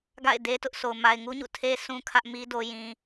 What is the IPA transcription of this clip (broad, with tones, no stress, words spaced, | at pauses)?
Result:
ɡa̰˦˨ɪ̯ de˦ tʊ˦ʔso˨ʊ̯ ma˨ɪ̯ŋu˦ɲṵ˦˨ tʰe˦ sʰũ˦kʰä˦ʔmi˦do˨ jĩ˨